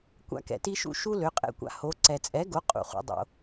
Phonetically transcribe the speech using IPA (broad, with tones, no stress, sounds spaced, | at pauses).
kʷ a̰˥ k ɛ̰˧ t i˥ ʃ ṵ˥ ʃ u˥ l ø˩˥ qʼ ɛ̰˥˩ kʷ a̰˧ h o˩˥ ǀ ɛ˩ t͡sʼ ɛ˩˥ ɡ o˩˥ qʼ ṵ˩ χ ṵ˩ dˤ o̰˩